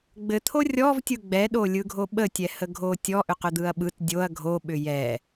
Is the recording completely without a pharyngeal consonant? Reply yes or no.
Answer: yes